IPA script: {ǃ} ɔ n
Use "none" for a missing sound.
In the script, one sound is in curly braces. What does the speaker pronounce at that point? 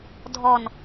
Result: dʱ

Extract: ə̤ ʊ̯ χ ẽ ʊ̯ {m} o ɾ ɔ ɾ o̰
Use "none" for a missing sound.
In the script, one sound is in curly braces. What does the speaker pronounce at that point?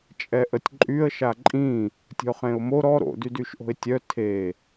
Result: m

